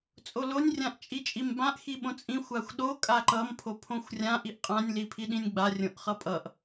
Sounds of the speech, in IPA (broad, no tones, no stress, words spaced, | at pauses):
t͡sʼolonʲ rʲãʔt͡ʃʼit͡ʃʼimbãʔ xiɓõt͡sʼĩ xʷaxʷɗo kʼaǃʌm pʰopʰõxʷrʲã ʔiʔqʼãnʲ lipʰiɗĩnʲɡ͡ba rʲõʔχʌpʼʌʔ